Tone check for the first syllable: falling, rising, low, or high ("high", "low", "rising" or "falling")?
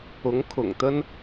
rising